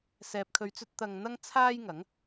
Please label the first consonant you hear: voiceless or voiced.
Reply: voiceless